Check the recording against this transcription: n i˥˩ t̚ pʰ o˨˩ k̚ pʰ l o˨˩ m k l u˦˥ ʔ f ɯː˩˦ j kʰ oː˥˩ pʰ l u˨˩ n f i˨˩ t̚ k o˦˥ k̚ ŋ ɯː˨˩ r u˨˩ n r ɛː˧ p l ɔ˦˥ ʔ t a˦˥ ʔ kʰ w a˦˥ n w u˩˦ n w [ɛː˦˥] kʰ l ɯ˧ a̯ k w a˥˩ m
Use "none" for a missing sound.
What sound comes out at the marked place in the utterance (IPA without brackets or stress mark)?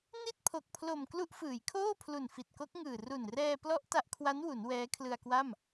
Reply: ɛː˦˥